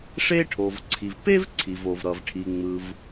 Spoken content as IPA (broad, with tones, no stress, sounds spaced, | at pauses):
ʂ e˥ ʈʰ o˩ v ǀʰ i˩ v p e˥ v ǀʰ i˩ v o˩ v ɾ ʌ˩ v ʈʰ i˩ ŋ͡m ɯ˩ v